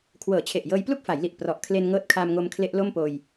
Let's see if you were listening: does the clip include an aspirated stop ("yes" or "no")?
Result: yes